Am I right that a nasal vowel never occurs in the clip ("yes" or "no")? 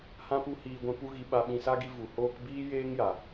no